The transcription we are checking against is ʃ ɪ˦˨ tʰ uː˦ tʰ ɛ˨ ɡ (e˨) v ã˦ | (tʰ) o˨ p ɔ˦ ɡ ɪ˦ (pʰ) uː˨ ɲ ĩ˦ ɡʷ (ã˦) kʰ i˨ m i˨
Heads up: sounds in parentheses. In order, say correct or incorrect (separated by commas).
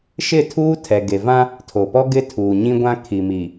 correct, correct, incorrect, correct